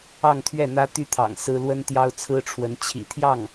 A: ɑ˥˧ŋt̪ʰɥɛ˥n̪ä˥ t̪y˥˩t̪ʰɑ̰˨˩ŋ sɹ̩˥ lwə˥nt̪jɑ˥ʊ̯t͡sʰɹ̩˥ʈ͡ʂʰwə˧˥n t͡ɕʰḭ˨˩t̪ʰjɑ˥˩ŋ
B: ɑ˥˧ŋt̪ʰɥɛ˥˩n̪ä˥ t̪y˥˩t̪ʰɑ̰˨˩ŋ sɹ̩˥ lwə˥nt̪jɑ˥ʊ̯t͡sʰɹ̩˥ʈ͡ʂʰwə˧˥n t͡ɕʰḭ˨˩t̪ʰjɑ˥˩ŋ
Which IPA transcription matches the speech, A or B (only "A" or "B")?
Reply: B